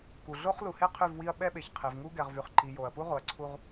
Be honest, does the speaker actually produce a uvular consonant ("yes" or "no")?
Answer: yes